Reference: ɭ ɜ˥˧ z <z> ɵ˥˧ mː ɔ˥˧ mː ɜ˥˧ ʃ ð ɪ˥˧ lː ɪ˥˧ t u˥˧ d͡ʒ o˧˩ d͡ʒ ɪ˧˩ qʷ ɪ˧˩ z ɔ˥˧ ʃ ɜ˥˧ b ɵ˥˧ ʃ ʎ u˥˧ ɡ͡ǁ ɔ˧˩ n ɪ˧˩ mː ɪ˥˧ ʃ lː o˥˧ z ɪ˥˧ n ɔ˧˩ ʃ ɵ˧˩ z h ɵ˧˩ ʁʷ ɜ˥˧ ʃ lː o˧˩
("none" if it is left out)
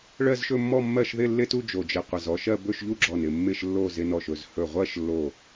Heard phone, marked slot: ʃ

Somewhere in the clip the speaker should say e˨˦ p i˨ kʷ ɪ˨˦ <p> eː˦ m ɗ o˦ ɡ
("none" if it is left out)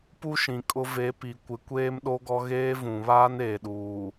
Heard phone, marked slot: kʷ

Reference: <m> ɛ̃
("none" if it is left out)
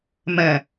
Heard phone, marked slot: m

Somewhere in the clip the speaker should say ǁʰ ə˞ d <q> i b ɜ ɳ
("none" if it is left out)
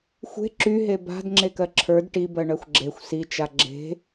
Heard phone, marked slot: ʈ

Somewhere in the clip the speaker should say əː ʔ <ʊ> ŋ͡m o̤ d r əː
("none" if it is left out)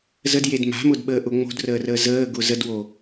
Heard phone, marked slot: ʊ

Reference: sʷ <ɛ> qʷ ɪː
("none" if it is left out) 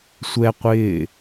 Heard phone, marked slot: ɛ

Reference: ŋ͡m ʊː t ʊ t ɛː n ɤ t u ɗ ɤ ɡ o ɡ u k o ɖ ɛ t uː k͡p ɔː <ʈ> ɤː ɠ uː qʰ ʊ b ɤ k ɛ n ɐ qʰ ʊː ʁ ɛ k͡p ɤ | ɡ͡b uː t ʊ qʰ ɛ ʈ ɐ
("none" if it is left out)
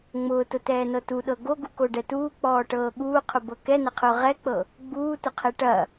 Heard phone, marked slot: ʈ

